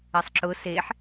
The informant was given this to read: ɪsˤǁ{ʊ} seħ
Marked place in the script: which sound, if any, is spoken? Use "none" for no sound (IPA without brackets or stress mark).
ʊ